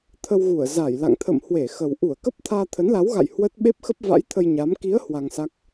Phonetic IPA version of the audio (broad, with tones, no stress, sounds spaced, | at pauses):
t̪ʰ ə˧ w ɣ u˧˩ ə̯ z a˧˩ j l a̰˧˨ ŋ t̪ʰ ə̰˧˨ m h w e˧˩ x ə˨˩ w ʔ u˧˩ ə̯ k ə˦˥ p̚ t̪ʰ aː˧ t̪ʰ ə˨˦ n l a˨˦ w ɣ a̰˧˨ j h w ə˦˥ t̚ ɓ e˦˥ p̚ x ə˦˥ p̚ v a̰˧˥ j t̪ʰ ə˧ j ɲ a˨˦ m k i˨˦ ə̯ h w a˧ ŋ s a˦˥ k̚